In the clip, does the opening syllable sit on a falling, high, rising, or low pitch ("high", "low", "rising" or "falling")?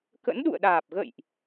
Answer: rising